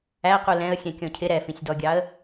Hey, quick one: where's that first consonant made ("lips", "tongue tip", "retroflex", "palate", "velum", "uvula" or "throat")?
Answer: uvula